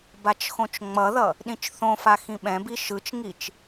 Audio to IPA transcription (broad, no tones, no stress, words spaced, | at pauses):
bat͡ʃxõt͡ʃŋ͡mʌðʌ | ɗĩt͡ʃθõfa xĩɓɛ̃bi ʃɯt͡ʃŋit͡ʃ